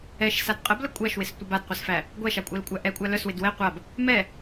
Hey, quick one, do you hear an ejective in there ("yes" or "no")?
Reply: yes